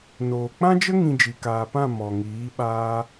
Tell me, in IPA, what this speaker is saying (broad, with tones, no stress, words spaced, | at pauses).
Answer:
noː˨k͡pã˦d͡ʒə˦ ŋĩ˧d͡ʒi˨kaː˨pã˦˨ mɔ˨ŋiː˨˦ ɓaː˦